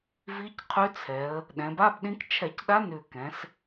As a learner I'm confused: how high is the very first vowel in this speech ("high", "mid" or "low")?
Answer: high